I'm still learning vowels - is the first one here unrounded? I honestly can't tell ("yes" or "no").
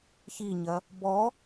yes